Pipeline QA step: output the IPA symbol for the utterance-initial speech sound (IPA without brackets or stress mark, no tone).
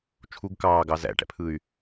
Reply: t͡ʃʰ